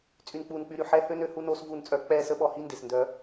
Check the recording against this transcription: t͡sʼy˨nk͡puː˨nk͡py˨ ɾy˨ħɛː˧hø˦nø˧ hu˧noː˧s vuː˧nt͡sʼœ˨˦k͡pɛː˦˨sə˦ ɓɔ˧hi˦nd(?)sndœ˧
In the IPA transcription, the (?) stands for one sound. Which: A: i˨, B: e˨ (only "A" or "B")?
B